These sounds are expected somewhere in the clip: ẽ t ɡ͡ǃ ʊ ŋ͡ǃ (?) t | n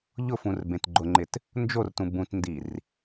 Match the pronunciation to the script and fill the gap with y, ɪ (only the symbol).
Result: ɪ